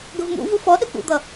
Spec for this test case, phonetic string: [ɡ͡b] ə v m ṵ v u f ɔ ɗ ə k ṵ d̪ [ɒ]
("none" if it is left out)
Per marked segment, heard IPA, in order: ɡ, ʌ

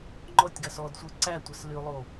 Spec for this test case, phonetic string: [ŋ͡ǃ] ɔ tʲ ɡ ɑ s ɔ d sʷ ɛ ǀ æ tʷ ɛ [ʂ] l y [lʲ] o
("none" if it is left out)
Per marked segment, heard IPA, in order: ŋ͡ǃ, s, lˠ

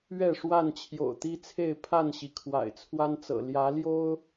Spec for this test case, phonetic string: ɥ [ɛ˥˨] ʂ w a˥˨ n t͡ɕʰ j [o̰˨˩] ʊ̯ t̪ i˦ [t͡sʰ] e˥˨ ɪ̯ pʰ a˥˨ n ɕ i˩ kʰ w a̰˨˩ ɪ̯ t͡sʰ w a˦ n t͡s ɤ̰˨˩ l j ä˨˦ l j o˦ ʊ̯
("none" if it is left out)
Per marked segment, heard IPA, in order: ɛ˥˨, o̰˨˩, t͡sʰ

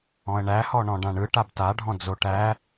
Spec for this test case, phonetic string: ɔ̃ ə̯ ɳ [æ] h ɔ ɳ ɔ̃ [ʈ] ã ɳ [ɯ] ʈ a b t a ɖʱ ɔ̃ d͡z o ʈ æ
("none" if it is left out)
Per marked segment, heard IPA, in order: æ, ɖ, ɯ

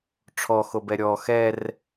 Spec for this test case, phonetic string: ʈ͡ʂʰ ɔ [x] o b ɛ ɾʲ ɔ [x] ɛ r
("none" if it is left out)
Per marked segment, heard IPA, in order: x, x

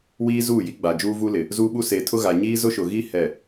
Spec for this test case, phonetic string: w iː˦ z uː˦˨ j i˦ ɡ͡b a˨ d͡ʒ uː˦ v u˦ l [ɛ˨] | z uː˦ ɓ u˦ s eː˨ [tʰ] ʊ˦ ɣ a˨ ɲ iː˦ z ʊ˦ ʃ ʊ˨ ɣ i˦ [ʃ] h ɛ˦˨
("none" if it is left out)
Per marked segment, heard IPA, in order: ɪ˨, tʰ, none

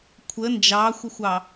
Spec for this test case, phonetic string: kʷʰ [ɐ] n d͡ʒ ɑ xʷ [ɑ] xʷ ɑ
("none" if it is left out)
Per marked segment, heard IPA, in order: ə, ə

